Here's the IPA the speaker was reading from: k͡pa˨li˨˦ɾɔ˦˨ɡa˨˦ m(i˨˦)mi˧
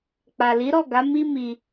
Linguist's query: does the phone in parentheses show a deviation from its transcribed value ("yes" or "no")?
yes